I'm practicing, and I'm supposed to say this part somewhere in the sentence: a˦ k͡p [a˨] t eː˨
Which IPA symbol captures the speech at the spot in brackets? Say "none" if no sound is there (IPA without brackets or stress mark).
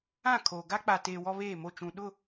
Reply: a˨